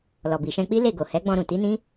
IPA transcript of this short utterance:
l ɔ˨ b i˨ ʃ ɛ̃˧ k͡p i˦ l e˦˨ ɡ o˨ h ɛ˨˦ ɡ͡b ɔ̃˧ ɾ ũ˨ t i˨˦ n ĩ˦

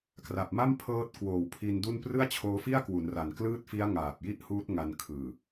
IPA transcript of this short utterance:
k r a˨˩ p̚ m a˥˩ m pʰ ɤː˦˥ t̚ k w oː˨˩ w pʰ i˧ n d u˥˩ n p r ɯ˥˩ a̯ t͡ɕʰ oː˦˥ f i˥˩ a̯ k w u˩˦ n r a˨˩ n k l ɯː˥˩ t̚ f i˦˥ a̯ ŋ aː˨˩ p̚ j i˥˩ ʔ h uː˦˥ t̚ ŋ a˧ n kʰ ɯː˨˩

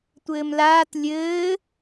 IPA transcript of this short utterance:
tʷ ɘː m l aː t lʲ ɘː

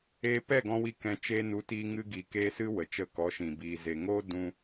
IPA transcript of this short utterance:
eː˧ p ɛ˦˨ ɡ ɔ̃˧ w i˧ k ɛ̃˧ t͡ʃ e˧ n u˨˦ t iː˧ ŋ ɨ˧ ɡ i˨ k eː˧ s ɨ˦ w ə˨ t͡ʃ ə˧ k ɔ˨˦ ʃ ĩ˨ b iː˨ z e˨ ŋ oː˦ d ũ˧

